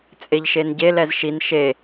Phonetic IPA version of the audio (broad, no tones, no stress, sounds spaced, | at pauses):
t͡sʼ e ʎ ʃ e n ɟ e l ɛ z ʃ i n ʃ e